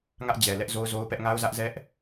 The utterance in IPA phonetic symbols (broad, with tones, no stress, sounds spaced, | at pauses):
ŋ ä˦ ʔ d͡ʑ ɛ˨ l ɛ˦ ʔ z o˦ ʊ̯ z o˦ ʊ̯ p ɛ˦ ʔ ŋ a˦ ʊ̯ z ä˦ ʔ z ɛ˦ ʔ